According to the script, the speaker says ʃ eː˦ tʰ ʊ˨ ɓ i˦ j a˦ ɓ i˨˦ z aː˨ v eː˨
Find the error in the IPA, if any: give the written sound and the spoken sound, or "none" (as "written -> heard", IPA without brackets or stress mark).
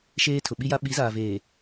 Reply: none